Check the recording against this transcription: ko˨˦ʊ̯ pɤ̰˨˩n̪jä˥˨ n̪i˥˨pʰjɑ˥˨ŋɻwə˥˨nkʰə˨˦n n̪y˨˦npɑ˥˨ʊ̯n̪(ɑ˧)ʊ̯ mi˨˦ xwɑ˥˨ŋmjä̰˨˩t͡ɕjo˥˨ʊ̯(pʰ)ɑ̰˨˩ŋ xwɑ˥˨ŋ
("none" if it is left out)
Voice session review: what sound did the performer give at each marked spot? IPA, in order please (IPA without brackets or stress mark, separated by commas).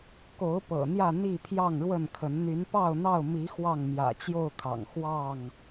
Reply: ɑ˥˨, kʰ